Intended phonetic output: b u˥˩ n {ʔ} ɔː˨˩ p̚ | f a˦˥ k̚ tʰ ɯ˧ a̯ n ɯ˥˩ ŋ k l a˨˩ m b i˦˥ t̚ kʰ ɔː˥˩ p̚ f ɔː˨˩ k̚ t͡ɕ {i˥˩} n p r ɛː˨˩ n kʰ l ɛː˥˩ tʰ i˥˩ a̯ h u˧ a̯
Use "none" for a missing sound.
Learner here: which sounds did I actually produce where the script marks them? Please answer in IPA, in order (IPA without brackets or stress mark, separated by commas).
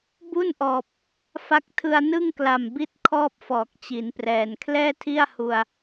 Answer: ʔ, i˩˦